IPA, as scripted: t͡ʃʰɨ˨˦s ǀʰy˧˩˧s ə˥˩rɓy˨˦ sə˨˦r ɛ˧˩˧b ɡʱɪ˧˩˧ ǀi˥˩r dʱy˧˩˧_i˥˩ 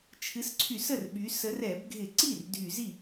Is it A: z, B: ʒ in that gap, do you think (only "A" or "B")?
A